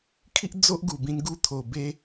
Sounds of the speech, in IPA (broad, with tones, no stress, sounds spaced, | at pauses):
kʰ i˦ ʔ d͡z o˦ ʔ ɡ u˨˩ b ĩ˧ n ɡ u˧ t̪ʰ o˨˩ b e˧